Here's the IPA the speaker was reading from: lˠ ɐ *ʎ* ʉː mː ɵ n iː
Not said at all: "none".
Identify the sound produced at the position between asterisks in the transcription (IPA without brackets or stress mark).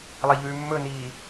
ʎ